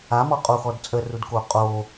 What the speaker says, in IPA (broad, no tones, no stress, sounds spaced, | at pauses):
a m ɔ qʼ o x ɔ d t͡sʼ ə r u d k o qʼ o